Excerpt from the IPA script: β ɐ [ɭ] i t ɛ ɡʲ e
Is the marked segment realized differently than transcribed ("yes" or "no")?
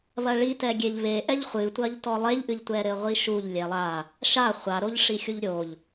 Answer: no